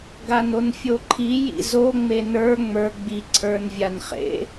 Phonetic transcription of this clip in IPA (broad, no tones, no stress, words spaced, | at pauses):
ɡanonfʲoǃʰi jḭzo ŋ͡menə˞ ŋ͡mə˞ ɡ͡bi ǀʰə˞nvʲanχḛ